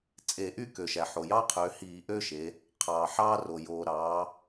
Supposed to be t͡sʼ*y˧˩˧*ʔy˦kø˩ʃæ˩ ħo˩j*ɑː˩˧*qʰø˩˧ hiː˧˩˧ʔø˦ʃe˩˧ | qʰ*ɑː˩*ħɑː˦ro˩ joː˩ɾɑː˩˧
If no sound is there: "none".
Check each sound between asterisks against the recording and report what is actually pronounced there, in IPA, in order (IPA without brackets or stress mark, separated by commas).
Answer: e˧˩˧, ɑː˦, ɑː˩